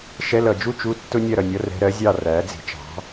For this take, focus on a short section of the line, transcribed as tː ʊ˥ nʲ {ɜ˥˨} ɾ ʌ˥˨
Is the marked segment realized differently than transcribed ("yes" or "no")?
no